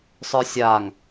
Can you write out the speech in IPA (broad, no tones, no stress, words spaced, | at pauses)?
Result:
sˤə˞sʲaŋ